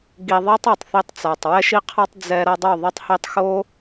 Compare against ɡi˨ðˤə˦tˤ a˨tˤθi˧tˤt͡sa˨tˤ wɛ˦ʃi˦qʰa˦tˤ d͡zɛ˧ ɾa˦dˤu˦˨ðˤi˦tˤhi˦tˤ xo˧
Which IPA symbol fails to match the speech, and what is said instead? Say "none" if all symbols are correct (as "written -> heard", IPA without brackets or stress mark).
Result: ə˦ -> a˦